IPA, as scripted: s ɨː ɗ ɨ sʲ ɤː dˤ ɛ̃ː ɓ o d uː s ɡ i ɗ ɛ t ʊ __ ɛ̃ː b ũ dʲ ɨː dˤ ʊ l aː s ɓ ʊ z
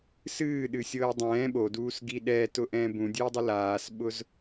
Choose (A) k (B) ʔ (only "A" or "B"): B